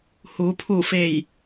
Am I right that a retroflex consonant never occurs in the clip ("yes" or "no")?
yes